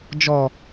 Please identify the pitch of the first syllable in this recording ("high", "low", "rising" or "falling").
low